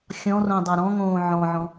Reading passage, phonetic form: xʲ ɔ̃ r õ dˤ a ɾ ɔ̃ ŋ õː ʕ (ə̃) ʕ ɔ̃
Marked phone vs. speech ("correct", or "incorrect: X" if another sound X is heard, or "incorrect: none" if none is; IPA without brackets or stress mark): incorrect: ɔ̃